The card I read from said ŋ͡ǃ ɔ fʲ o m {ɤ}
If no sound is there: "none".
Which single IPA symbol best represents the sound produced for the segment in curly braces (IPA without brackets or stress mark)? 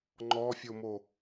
o